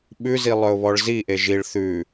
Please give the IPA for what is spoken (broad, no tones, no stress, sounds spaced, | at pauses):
ɓ ʉ z i lˠ œ ʊ̯ β ɔ ɭ z i ʔ e ʒ i ɭ θ ʉ